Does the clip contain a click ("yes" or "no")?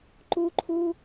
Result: yes